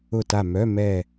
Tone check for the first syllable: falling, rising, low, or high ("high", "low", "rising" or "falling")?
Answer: falling